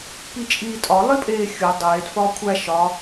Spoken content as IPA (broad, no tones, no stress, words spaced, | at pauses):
pit͡ʃʼiːtʼɒ lˠipʼeːxʲo dˤeːd fɒːkʷʰæ ʃɒ